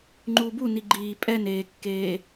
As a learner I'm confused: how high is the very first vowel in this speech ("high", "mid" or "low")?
high